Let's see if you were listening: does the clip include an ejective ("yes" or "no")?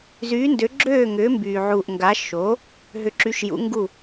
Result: no